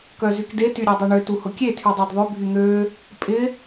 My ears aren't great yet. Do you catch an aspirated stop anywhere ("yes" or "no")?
yes